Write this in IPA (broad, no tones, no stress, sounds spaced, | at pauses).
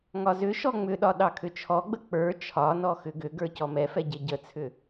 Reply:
ŋ ɒ z ʏ ʃ ɔ ŋ͡m ʏ ɗ ɒ ɗ ɑ kʰ ʏ t͡ʃʰ ɔ ɡ͡b ə k͡p ə˞ t͡ʃʰ ɒ n ɔ x ʏ ɡ ʏ ɡ ə˞ c ɔ m ɛ f ɛ ɟ e ɟ ə t͡sʰ ʏ